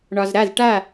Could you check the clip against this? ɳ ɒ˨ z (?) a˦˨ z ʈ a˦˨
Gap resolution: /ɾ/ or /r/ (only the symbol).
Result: ɾ